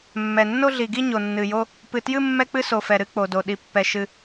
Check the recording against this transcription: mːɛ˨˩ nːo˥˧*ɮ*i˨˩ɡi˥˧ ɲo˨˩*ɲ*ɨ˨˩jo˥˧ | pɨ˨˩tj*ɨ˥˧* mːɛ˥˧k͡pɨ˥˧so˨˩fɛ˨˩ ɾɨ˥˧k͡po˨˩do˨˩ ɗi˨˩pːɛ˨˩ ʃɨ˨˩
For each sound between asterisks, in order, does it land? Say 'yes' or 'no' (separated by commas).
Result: yes, no, yes